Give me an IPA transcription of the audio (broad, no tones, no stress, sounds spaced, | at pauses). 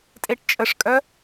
tʼ e ʈ t͡ʃʼ ə ʂ kʼ œ